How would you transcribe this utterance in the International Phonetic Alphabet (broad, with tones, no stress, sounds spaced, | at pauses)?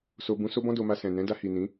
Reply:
s o˧ b ũ˧ s o˦ b ɔ̃˦ d o˧ m a˧ s ɛ̃˨ n ɛ̃˨˦ d a˧ h i˨ n ĩ˨˦